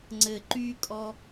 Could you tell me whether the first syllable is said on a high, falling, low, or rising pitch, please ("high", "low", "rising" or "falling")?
high